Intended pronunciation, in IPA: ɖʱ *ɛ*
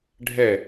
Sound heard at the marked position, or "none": ɛ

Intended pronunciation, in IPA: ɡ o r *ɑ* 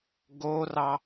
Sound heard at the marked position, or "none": ɑ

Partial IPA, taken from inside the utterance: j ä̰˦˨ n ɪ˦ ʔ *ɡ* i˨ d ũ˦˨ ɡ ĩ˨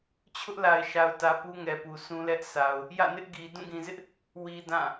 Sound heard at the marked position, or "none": ɡ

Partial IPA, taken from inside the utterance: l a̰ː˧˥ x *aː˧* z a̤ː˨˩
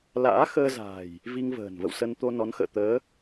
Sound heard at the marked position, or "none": əː˧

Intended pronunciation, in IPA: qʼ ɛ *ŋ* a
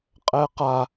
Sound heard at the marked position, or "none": q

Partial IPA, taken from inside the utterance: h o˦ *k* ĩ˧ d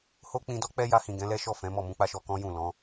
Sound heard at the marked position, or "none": k͡p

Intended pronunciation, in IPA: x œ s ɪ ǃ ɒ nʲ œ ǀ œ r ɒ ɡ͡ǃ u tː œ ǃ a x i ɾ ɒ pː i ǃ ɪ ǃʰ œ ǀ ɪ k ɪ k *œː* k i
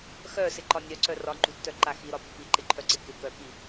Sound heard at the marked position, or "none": œ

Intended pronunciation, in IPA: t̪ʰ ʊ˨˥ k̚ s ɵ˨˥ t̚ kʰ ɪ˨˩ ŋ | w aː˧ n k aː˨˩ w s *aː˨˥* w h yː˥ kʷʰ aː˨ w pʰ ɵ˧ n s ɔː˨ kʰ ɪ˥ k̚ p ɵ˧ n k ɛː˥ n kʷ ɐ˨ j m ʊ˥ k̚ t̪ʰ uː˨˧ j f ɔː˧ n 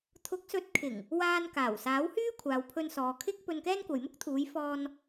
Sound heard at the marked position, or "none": aː˨˥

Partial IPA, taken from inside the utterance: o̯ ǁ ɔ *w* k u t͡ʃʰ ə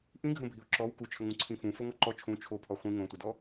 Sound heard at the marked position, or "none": w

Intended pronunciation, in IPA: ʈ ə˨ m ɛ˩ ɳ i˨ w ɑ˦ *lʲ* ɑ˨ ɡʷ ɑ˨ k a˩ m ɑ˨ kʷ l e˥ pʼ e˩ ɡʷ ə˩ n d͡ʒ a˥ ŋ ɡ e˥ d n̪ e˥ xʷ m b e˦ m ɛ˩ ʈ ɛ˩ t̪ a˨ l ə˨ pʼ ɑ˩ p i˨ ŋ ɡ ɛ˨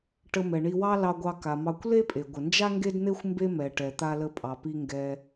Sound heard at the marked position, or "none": l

